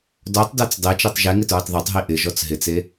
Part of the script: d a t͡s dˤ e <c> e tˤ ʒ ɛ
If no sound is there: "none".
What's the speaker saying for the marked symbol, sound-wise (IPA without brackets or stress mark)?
t͡ʃ